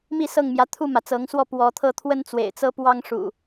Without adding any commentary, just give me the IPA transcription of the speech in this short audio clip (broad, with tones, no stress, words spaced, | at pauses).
mi˥˨sɤ˥˨ŋmjä˨˦ t̪ʰu˥˨mä˩t͡sɤ˨˦ŋswɔ˥˨ pwɔ˨˦t̪ʰɤ˥˨t̪ʰwə˦n t͡swḛ˨˩ɪ̯t͡sɤ˦ pwɑ˦ŋ ʂṵ˨˩